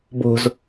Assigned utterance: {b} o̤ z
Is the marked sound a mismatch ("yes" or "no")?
no